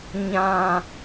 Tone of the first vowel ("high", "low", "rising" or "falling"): high